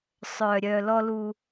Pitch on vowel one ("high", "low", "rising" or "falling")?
low